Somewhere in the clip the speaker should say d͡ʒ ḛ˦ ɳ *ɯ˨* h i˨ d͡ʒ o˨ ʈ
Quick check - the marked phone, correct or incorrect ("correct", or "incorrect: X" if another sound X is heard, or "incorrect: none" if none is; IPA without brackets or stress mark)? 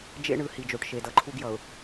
correct